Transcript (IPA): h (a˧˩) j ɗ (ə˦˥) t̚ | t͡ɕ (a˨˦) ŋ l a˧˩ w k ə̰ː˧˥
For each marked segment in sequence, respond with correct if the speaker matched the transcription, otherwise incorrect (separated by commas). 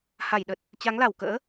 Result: correct, incorrect, correct